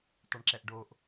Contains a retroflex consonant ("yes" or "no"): yes